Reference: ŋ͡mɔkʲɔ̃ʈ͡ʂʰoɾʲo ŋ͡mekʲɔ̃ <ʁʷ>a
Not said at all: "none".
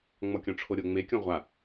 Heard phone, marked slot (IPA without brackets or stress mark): ʁʷ